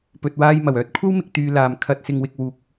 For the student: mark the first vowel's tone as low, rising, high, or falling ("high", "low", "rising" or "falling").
low